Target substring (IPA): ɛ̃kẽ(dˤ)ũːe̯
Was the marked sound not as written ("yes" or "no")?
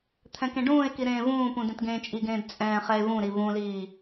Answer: yes